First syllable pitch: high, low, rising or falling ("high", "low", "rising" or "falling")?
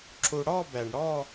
low